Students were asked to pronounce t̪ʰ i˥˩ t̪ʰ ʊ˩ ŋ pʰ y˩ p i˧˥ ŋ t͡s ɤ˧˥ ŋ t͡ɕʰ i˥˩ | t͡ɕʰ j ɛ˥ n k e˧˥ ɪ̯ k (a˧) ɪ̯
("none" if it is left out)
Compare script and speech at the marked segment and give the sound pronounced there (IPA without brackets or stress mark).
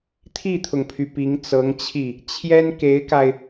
a˧